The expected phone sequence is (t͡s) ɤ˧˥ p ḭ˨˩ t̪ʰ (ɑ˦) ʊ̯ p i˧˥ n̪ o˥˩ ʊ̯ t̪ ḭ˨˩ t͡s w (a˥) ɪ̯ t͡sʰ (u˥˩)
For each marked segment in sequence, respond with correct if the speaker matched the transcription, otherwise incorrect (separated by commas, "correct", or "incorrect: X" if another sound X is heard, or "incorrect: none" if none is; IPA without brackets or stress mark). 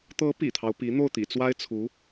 incorrect: t̪, correct, correct, incorrect: u˧˥